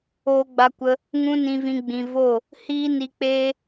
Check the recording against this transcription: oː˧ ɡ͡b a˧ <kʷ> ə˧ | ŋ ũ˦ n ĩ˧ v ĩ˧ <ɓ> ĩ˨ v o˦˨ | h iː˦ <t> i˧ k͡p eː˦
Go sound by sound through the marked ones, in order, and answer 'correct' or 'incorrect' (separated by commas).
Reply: correct, incorrect, incorrect